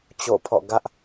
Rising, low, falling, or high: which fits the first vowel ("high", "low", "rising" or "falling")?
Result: falling